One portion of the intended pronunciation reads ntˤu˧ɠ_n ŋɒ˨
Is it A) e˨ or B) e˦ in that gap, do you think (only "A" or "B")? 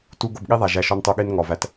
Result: B